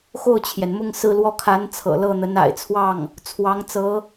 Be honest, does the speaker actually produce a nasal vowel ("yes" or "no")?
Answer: no